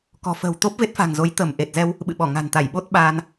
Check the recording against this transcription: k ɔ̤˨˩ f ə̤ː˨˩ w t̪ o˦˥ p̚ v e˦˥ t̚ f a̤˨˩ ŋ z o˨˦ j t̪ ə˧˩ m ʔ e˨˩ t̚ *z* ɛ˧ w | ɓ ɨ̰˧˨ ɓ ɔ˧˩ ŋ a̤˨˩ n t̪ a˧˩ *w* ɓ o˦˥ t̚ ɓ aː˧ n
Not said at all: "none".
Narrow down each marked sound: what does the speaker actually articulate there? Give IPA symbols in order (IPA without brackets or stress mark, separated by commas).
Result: z, j